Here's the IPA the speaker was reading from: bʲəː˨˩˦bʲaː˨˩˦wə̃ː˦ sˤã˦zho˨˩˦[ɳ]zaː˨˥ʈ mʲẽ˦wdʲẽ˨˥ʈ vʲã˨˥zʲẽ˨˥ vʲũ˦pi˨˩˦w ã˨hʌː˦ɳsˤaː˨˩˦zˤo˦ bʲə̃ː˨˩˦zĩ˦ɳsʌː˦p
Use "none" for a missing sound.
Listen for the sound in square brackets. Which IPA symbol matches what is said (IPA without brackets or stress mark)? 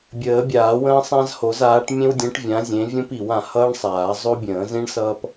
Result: none